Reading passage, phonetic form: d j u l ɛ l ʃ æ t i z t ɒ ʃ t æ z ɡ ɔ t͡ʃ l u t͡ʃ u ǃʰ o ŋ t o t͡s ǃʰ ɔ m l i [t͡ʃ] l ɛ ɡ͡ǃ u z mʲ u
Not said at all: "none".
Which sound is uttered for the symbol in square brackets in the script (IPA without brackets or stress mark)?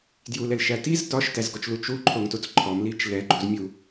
t͡ʃ